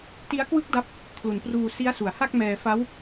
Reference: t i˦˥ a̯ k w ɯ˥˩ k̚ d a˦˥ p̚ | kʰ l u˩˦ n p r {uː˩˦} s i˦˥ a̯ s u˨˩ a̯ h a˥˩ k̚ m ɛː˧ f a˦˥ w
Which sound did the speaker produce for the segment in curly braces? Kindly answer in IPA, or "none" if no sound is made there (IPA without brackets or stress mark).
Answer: uː˧